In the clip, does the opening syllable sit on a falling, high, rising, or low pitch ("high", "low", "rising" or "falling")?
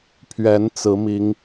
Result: rising